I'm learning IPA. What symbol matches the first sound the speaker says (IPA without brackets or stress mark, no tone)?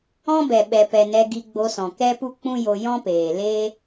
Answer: ɔ̃